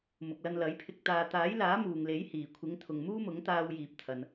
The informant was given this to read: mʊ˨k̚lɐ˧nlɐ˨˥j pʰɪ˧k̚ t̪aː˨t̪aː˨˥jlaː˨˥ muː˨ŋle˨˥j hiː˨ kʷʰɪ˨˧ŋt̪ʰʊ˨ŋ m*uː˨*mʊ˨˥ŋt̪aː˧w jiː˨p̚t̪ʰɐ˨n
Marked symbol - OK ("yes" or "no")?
no